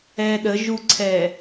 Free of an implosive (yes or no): no